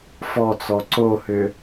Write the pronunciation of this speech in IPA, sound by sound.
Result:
f ɔ t͡s ɔ ǀ o h ʏ

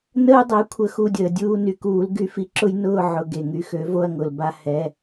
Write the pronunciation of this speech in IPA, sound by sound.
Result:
n əː˦ dˤ ɛ˩˥ kʷʰ ə˩˥ x u˩˧˩ dʲ əː˩ dʲ uː˦˨ n y˩˧˩ k uː˨˩˦ l ɡ y˨˩˦ f i˩˥ ǁ ʊ˦ j n ʊː˦˨ ʕ ʊ˩˧˩ ɡ e˩ ŋ y˩˧˩ x ø˩˥ v o˦˨ ɐ̯ ŋ ʊ˩ l b a˦ h ɛ˩˧˩

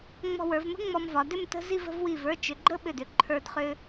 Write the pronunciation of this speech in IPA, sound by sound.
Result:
ŋ͡m ɔ̤˧ w ə˞˩˧ v m ə̤˥ ŋ͡m ɔ˧ m v ɒ˩˧ d ʏ˥˧ m t ə̤˥ z i˥˧ v ə̤˥˧ v w i˧˩ v ə˞˥˧ t͡ʃ ʏ˩˧ ɡ͡ǃ ə˥ ɓ ʏ˧˩ d ʏ˧˩ ǃʰ ə˞˧ d χ ʏ˧

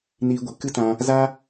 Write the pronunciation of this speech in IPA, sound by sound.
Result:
n iː˧ ɡʷ ɨ˨ k ɨ˦ t ã˧ | z a˦

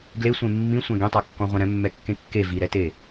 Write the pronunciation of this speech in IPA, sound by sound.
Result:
ɡ l e sʷ ẽ mː ĩ sʷ ɛ̃ ɡ ẽ tˤ a kː ɔ̃ ʁʷ ɛ̃ ɾ ɛ̃ mː ɛ kː ẽ kː e v i ɾ ɛ t e

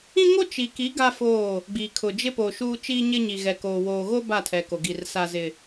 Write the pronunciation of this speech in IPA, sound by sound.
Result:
ĩ˦ ŋ o˦ t͡ʃ i˨ k i˨˦ ɡ a˦ f oː˦˨ | ɡ͡b i˨ kʰ ʊ˨ d͡ʒ ɪ˦ p o˨ ʃ uː˦ t͡ʃ iː˦ ɲ ɪ˦ ɲ i˨ ɣ ɛ˨ k oː˨ w oː˨ ɣ o˦ b a˦˨ tʰ ɛ˨ k o˨ ɡ i˨ r s a˦ z ɪ˦

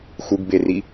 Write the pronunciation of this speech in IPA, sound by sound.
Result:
x u ɡ b e r i

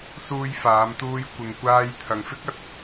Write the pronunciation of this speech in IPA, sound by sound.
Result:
s uː˧ j f aː˨˧ m t̪ uː˧ j kʷ ɪ˨ ŋ kʷ aː˧ j t̪ʰ ɐ˨ ŋ f ɪ˥ k̚ ɐ˨˥ t̚

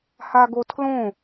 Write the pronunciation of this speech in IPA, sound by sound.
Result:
h a ɡ o tʰ l õ

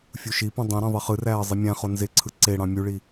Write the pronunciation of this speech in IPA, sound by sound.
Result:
fʲ u ʃ i p ũ dˤ ĩ ɾ ĩ ðˤ i χ ɯ r æː ə̯ zˤ i mʲ æ̃ χ o n z e ǀʰ ɯ ǀ e ɽ ɑ̃ mʲ u ɭ i

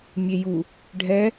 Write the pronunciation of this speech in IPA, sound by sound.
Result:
mʲ e j u | ɖʱ ɛ

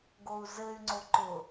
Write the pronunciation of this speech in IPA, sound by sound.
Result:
ɡ o u̯ z ɘ y̯ ŋ͡ǀ o ǃ ʊ

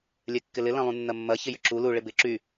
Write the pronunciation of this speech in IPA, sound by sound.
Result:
lʲ ɛ kː ɪ l ɪ l ɐ̃ lˠ ũ nː ɐ mː ɐ ç ɪ j ʏ ǁ u l u ɭ ɪ b ɪ ǁ y

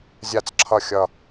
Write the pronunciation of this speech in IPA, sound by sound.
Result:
zʲ a˥˧ t͡s ǁʰ ʌ˥˧ xʲ ʌ˥˧

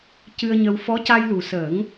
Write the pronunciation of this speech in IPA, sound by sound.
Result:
c ɨ˧ ə̯ ɲ ə˧ w f ɔ˧˥ c a˧ j l u˨˩ s əː˨˩˦ ŋ

